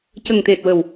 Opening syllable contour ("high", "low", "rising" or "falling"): low